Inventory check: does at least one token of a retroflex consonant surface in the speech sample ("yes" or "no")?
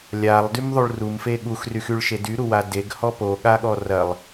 yes